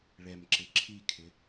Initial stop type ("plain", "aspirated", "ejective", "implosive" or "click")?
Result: click